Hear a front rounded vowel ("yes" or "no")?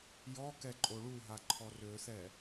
yes